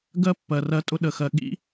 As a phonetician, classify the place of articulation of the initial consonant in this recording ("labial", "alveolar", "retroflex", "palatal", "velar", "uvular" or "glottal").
velar